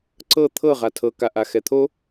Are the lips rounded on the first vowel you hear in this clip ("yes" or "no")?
no